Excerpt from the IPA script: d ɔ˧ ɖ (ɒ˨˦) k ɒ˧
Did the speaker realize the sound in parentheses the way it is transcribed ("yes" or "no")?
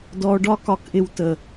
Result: no